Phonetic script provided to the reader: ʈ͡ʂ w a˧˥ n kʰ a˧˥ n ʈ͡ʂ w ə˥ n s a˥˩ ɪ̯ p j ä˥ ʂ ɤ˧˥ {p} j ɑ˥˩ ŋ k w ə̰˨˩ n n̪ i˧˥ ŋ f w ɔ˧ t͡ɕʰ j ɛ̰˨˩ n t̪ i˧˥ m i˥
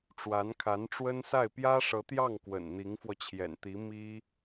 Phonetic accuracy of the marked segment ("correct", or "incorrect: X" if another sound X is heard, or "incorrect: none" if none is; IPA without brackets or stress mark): incorrect: t̪